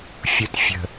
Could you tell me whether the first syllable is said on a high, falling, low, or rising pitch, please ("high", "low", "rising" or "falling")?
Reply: low